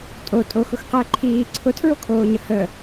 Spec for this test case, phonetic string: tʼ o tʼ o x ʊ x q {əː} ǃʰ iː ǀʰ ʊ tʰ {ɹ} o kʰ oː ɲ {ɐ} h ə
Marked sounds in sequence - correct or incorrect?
correct, correct, incorrect

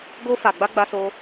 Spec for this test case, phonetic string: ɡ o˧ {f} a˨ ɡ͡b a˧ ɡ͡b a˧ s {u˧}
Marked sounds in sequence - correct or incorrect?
correct, incorrect

